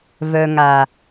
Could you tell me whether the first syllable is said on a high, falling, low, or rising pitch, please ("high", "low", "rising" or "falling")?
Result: low